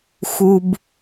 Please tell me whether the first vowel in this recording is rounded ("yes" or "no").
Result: yes